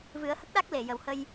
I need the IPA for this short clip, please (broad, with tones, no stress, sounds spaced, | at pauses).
v ɨ˨˩˦ ə̯ h ə˦˥ k̚ ɗ a˦˥ k̚ l e˨˩˨ j ə˨˩ w h ə˧ j